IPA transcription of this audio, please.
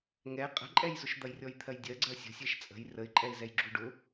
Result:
ŋ ɛ qʼ ə̤ ǃʼ ɛ j z ʊ ʃ d̪ ɐ j rʲ ɔ j t̪ʰ ɜ j dʲ ɜ ɡ͡ǀ ɜ sʲ ə̤ sʲ ɛ ʃ t͡sʼ ə̤ j r ə ɪ̯ ǃʼ ɛ ɪ̯ z ɛ j ɡ͡ǁ u ɖ ʊ

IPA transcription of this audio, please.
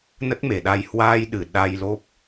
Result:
n ə˦˥ t̚ m e˨˩ ɗ a˧ j h w aː˧ j ɗ ɨ˨˩ ɗ a˧ j l o˦˥ p̚

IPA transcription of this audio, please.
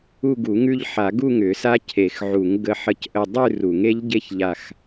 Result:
u˥˧ ɡ u˨˩˦ ŋ ʉ˥˧ ʎ ħ a˨˩˦ ɡ u˥˧ ŋ ʏ˨˩˦ s a˦˥ cʰ e˨˩˦ x ʕ u˨˩˦ ŋ ɡ ə˦˥ ħ ə˥˧ c ʔ ə˥˧ dˤ ʉ˥˧ r u˨˩˦ ŋ e˦˥ ʎ ɟ e˥˧ ç ʎ a˥˧ x

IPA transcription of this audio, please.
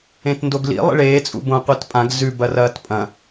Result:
ẽ t n d o ɡ l ḭ lˠ ḭ ɭ eː t͡sʼ ṵ b õ qʷ i t pʼ ã ɡ z ʉ b ɐ r ɐː t pʼ ɐ̃

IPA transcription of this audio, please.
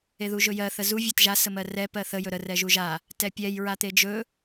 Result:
e ð u ʒ ɵ j ɜ θ ə z u vʲ a t ʒ a s ə m ɜ r ɛ p ɜ θ ə j ɵ ɾ ə r ɛ ʒ u ʒ a | t ɛ pʲ ɛ j ɹ a t̪ e d͡ʒ ɵ

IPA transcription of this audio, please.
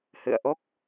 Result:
h ɨ̰˧˨ ə̯ ʔ o˦˥ k̚

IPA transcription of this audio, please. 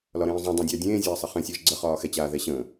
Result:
l ɒ ɾ ẽː zˤ õ dˤ ẽ dʲ a dʲ ẽː zʲ ɛː sˤ ə χ ẽ sʲ əː ʒ ɡ͡ǀ ə χ ɒː x ɛ t͡ɕ aː ð ɛ ɕ ə̃ː

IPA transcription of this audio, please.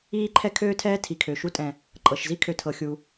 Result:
iː˥ ǃʰ ɛ˥ kʰ øː˥ tʰ ɛː˥ tʰ i˩ kʰ ø˩ ʃ u˥ tʼ ɛ̃˩ | ǃʼ ɤ˩ ʃ z i˥ kʰ ø˩ tʰ ɤ˩ xʲ u˩

